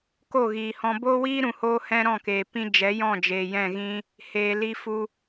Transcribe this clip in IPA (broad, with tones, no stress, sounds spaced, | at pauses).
k o˦˨ ɣ iː˨ h ɔ̃˧ b oː˦ w iː˦ ɾ ũ˨ h oː˧ h ɛ̃˦ ɾ ɔ̃˦˨ k eː˨ p ĩ˧ d͡ʒ ɛ˨˦ j ɔ̃˦˨ d͡ʒ eː˨ j ɛ̃˦˨ ɣ ĩ˦ | h eː˧ l i˦ f u˦